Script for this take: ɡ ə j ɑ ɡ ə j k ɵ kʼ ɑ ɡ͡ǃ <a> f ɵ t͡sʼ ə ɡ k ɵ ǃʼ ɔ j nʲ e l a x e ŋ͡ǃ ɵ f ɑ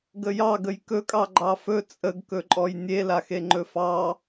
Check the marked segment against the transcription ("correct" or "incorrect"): incorrect